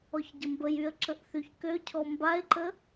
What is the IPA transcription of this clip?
ɔ ç ɟ ə m b ə j y ə̯ ǁ ə ʔ θ y ç k ø cʰ ɔ m b a ɪ̯ ǃ ə

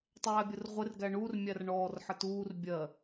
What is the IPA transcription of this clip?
tˤ æː bʲ ʊ r ʁʷ ɪ r ɡ æ ɳ u r mʲ æ r ɳ ɔː r ħ ə t uː r bʲ ɜ

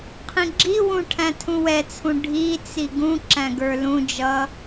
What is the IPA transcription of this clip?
qʰ ĩ ɡ͡ǁ i w ũ ʈʰ æ̃ tʰ ũ w ɛ t͡sʰ ũ ɖʱ i t͡s i ɡ ũ ǁ æ̃ ɡ ə˞ l ũ d͡ʒ ʌ

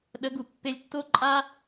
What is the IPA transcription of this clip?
ɗ ə˨˦ ɡ u˨ pː e˧ lʲ tː o˦ ǃʼ a˦

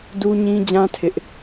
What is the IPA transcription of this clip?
d u˦ ɲ ĩ˦ d͡ʑ ã˦ tʰ ɪ˦ ʔ

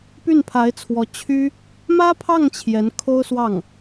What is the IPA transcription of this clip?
p y˥˩ n pʰ a˧˥ ɪ̯ t͡sʰ w ɔ˧˥ t͡ɕʰ y˥ | m ä˥ pʰ ɑ˥˩ ŋ t͡ɕʰ j ɛ˧˥ n kʰ o˥ ʊ̯ s w ɑ˥˩ ŋ

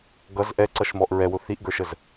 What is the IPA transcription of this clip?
ɡ ʌ z ʔ ɛ ǀ ʌ ʃ m ɔ ʔ ɹ ɛ w ʊ θ i ʔ ɡ ə˞ ʃ ə z

